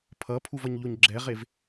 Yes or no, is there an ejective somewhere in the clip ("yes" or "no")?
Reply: no